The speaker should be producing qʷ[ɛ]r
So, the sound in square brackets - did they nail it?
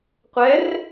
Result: yes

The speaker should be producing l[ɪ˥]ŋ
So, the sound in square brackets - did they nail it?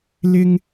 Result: yes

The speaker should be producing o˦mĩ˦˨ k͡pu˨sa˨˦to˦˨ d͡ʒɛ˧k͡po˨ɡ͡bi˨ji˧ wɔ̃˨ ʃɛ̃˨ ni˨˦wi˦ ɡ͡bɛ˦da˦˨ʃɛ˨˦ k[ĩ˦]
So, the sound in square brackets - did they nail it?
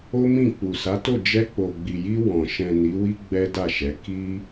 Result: no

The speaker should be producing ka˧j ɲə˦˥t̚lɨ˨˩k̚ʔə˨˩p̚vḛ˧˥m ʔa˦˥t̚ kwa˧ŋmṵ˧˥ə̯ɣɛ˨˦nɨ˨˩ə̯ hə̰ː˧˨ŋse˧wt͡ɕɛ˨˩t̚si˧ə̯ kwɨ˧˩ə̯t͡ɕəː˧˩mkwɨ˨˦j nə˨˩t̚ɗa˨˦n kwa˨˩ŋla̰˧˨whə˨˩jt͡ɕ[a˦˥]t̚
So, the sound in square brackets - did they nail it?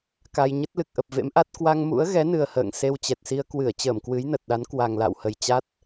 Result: yes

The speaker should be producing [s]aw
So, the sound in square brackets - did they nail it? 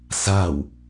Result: yes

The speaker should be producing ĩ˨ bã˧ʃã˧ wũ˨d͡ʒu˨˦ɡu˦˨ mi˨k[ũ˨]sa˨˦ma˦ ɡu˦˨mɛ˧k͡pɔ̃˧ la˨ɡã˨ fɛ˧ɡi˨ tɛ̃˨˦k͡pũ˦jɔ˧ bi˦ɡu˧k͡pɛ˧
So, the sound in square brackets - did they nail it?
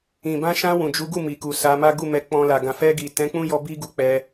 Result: no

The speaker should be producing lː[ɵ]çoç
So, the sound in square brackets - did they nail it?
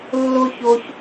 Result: no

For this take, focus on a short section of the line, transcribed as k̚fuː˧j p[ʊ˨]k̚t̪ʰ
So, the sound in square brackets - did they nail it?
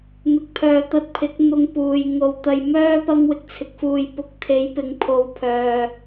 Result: no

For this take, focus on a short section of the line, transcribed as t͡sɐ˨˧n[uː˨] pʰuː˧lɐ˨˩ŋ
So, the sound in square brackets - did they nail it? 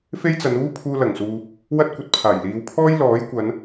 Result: no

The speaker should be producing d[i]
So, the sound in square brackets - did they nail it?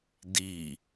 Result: yes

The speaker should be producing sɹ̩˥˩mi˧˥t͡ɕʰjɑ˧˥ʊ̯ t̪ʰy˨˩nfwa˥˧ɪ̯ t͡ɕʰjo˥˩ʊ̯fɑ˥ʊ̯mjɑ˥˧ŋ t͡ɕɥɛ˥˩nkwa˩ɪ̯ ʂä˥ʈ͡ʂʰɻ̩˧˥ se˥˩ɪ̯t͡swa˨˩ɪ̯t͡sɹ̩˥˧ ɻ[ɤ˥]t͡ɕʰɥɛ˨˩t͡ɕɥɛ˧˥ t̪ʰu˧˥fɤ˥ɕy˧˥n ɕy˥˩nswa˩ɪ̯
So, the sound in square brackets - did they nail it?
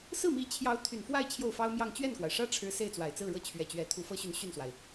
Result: no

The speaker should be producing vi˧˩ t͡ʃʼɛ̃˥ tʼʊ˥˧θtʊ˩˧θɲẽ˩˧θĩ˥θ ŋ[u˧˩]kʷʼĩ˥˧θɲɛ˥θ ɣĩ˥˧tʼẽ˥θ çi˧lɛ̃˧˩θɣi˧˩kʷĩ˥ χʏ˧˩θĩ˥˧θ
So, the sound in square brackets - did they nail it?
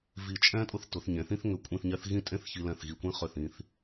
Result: no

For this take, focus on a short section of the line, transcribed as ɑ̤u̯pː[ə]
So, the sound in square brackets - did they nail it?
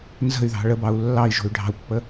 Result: yes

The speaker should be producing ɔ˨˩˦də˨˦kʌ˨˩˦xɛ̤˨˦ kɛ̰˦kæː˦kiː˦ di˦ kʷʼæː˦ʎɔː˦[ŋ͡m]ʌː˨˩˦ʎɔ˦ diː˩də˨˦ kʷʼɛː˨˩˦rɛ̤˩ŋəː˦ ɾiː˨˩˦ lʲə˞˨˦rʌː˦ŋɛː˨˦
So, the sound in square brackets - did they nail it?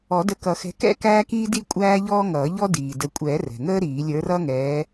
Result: no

